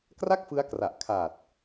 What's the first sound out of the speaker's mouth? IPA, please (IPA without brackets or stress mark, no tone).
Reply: k